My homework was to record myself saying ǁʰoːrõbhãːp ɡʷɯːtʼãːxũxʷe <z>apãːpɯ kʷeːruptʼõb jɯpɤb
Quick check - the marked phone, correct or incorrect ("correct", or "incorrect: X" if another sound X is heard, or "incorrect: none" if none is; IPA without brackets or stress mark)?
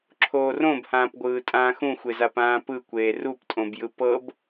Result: correct